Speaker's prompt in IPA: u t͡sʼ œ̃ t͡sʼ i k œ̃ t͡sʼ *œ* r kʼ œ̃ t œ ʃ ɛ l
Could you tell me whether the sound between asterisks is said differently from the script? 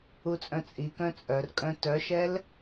no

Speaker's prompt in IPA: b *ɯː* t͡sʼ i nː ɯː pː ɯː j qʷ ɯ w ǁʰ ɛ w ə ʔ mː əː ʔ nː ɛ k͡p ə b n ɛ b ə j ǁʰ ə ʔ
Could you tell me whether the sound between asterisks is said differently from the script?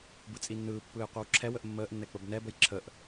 yes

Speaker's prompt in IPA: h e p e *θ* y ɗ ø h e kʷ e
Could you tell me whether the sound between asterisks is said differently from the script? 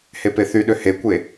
no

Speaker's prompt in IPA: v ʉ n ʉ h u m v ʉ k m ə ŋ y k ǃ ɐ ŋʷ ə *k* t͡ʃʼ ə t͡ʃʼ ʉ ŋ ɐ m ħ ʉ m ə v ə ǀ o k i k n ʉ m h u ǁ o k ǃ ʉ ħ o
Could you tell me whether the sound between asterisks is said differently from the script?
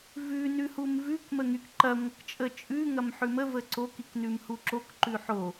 no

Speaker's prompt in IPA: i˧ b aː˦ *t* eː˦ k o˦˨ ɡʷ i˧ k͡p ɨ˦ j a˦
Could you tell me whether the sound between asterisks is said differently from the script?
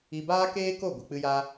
yes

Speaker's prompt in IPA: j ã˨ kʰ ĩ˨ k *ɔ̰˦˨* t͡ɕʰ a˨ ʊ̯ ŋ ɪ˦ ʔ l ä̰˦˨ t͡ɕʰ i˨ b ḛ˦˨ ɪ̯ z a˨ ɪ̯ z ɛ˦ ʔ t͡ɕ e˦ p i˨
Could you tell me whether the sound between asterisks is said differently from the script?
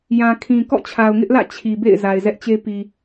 no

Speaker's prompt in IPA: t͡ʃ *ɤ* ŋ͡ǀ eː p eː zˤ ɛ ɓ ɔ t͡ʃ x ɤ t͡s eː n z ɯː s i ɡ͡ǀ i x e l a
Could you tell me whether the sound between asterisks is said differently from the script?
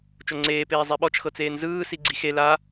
yes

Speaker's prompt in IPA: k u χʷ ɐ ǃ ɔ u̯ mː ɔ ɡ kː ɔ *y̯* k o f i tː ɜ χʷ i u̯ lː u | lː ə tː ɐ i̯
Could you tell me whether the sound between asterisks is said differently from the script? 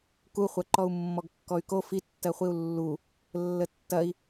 no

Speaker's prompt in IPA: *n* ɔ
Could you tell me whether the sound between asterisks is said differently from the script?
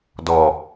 yes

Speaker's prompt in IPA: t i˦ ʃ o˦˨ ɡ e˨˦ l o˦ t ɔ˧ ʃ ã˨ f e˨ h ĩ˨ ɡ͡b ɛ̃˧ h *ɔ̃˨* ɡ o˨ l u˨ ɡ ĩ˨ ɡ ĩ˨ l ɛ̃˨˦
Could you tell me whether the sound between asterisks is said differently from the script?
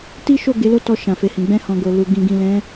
no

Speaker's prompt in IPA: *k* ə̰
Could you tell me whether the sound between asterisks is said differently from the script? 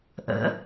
yes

